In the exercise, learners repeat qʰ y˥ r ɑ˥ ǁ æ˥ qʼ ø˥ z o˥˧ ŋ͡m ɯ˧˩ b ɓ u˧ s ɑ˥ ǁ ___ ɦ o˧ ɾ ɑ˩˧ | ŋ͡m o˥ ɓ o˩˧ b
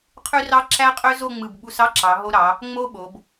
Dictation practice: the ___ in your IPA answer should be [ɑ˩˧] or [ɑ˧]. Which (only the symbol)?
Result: ɑ˩˧